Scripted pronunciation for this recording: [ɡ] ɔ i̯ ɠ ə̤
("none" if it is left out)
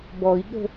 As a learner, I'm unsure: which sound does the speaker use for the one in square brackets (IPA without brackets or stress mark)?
b